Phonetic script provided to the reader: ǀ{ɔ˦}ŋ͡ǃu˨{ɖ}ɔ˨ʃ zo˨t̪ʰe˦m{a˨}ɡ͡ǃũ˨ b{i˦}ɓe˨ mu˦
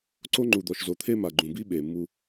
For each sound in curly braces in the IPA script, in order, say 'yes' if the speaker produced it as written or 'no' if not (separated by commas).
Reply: no, no, yes, yes